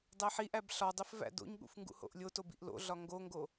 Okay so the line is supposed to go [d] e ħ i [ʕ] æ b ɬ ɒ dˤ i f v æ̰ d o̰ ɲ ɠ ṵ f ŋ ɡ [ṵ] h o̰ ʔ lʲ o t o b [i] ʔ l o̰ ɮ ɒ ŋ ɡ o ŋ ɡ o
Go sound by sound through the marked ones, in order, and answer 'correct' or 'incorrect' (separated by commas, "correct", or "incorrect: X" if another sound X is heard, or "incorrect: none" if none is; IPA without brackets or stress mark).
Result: incorrect: dˤ, incorrect: ʔ, correct, incorrect: ḭ